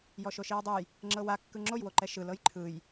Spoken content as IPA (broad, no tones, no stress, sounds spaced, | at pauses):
j ɔ ʃ o ʃ i ɹ dˤ u j | ŋ͡ǁ ɤ w a kː ɯ ŋ͡ǁ o j w o ǃ ɛ ʃ ɯ l ɤ j ǃʰ ɯ j